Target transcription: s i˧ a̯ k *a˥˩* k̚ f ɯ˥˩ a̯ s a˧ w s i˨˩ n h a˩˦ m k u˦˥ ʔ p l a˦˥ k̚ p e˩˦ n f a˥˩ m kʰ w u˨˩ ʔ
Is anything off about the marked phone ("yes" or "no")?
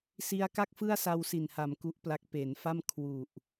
no